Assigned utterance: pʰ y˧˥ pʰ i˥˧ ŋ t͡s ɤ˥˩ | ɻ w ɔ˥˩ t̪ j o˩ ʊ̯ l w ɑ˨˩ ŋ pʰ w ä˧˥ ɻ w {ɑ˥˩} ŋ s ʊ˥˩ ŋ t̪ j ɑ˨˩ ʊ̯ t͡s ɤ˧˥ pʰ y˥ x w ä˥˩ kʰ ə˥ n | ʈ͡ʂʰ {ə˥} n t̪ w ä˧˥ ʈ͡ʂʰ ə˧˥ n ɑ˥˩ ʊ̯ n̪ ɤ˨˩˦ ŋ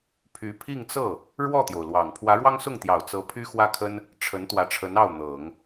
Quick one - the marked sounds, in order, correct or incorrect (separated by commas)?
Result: incorrect, incorrect